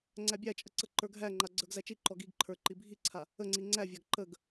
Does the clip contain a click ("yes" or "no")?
yes